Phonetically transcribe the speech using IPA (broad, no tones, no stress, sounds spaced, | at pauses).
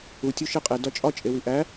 u tʲ u ʃ e qʼ e d ɒ t͡ʃʼ ɒ t͡ʃʼ e w i ʔ æ